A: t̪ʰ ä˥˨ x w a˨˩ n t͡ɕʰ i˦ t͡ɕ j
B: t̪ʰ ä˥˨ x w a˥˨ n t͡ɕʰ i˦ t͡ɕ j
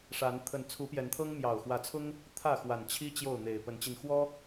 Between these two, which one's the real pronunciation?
A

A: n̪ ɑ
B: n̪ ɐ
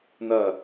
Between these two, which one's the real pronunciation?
B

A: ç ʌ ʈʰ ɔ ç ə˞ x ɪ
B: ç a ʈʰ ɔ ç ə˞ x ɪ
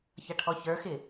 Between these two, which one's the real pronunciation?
A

